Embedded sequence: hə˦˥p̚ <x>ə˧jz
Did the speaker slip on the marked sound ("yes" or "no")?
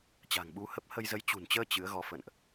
yes